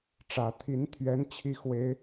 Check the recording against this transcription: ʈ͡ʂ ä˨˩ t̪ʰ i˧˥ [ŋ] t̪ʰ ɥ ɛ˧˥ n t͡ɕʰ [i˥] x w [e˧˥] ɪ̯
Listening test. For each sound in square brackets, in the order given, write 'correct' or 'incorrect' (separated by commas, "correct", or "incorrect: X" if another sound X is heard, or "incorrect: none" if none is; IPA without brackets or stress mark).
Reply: incorrect: n, correct, correct